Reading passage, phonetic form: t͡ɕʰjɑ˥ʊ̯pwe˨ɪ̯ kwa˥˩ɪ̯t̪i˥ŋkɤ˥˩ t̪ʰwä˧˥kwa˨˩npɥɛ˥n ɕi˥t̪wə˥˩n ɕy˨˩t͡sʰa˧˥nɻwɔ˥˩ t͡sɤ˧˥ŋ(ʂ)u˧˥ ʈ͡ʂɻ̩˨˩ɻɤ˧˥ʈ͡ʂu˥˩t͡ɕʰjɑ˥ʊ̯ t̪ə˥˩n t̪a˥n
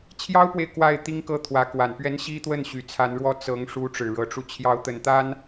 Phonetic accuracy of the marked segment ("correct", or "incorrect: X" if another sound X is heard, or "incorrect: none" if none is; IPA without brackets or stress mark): correct